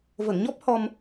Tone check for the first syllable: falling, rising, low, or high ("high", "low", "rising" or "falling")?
low